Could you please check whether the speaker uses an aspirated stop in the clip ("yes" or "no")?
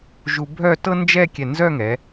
no